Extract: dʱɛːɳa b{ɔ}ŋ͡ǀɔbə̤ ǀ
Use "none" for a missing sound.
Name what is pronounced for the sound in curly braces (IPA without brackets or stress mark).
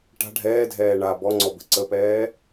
ɔ